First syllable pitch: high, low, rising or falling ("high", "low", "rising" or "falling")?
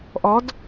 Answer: rising